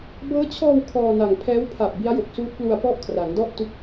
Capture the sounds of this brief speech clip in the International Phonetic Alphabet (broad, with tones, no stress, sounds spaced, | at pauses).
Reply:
b ɤː˦˥ t͡ɕʰ ɔː˧ w kʰ ɔː˧ n a˨˩ ŋ pʰ ɛː˦˥ w pʰ a˨˩ p̚ b i˦˥ a̯ j o˨˩ k̚ s uː˦˥ t̚ p l u˧ a̯ p ɔ˥˩ ʔ kʰ r a˩˦ ŋ d ɔ˥˩ ʔ t u˥˩ k̚